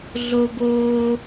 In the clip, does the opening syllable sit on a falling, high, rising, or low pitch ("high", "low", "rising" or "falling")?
high